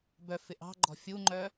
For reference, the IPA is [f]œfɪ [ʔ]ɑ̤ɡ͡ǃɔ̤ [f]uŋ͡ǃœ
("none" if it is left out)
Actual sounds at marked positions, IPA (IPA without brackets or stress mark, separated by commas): b, ʔ, fʲ